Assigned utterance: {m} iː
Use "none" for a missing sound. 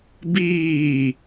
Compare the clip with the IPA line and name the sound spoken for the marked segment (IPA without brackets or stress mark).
b